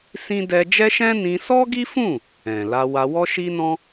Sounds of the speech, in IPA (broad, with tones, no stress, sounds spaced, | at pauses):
s ĩ˦ d ɛ˦ d͡ʒ ɛ˦ ʃ ɛ̃˦ n ĩ˧ s ɔ˦ ɡ i˦ f ũ˦˨ | ɛ̃˨ l a˧ w a˧ w ɔ˦ ʃ i˦ n ɔ̃˦